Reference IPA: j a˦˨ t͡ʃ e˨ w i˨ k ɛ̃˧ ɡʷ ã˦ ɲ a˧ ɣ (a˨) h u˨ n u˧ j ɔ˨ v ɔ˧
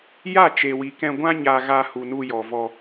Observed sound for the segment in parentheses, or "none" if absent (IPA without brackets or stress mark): a˧